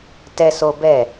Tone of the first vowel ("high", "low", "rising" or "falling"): high